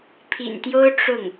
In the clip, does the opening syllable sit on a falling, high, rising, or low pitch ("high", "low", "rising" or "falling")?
low